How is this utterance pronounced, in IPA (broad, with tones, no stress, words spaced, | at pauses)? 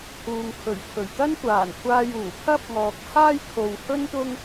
huː˨ŋkʰɵ˨˩ɥkʰɵ˨˩ɥ t̪ɐ˥n kʷaː˨˩nkʷʰaː˧juː˨˩ pʰɐ˥p̚ŋɔː˨k̚haː˥jkʰo˨w hɵ˥nt̪ʊ˥ŋ